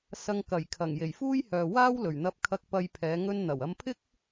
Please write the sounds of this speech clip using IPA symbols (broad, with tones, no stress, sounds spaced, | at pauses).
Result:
s ɐ˧ ŋ k ɐ˨˩ j kʰ ɐ˨˩ ŋ j e˨˩ j f uː˥ j h œː˨ w aː˥ w l ɵ˨˩ ɥ n̪ ɐ˧ p̚ kʰ ɐ˧ k̚ p ɐ˧ j pʰ ɛː˨˧ ŋ ɵ˧ n n̪ ɐ˨˩ w ɐ˧ m pʰ ɪ˥ k̚